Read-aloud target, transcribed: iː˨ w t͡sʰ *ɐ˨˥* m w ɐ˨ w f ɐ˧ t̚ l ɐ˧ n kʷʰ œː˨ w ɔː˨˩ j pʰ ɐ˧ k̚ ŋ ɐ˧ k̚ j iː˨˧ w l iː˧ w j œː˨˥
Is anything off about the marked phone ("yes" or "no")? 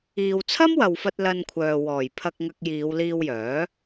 yes